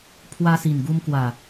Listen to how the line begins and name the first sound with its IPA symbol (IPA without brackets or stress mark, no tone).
pʰ